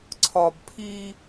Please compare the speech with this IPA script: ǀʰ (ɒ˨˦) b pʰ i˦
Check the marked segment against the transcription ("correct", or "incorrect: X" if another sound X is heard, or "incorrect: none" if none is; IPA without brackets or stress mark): incorrect: ɒ˨